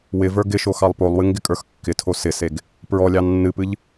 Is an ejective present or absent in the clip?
present